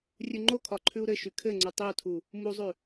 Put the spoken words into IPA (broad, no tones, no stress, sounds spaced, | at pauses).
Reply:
rʲ ʉ ŋ͡ǃ o kʰ ɒ ǃʰ ʉ u̯ ɾ ɘ ʃ y kʰ ɘ ŋ͡ǀ u tˤ i u̯ tʰ u | m u zˤ ʉ